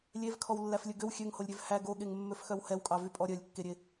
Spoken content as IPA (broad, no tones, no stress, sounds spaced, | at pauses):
lʲ e v kʰ ɔ w lː æ f lʲ ɵ ɡ ø w xʲ ø ŋ h o lʲ ɾʲ ø v h æ ɡ o ɠ e ŋ mː ø f x œ w h ɛ w kʼ ɑ v y pʼ ɔ ɾʲ œ lʲ kː e ɾʲ e